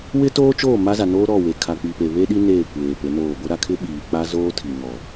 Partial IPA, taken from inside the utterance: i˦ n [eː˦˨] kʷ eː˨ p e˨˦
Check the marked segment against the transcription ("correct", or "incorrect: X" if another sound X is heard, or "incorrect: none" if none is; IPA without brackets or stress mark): correct